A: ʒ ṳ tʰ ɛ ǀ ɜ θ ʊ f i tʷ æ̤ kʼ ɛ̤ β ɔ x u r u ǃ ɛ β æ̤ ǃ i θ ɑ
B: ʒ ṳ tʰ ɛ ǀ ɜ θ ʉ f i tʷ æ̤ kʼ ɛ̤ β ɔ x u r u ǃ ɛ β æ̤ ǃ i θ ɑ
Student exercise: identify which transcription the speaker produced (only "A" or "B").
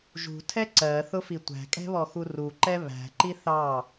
A